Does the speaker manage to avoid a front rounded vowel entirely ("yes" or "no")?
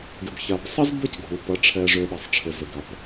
no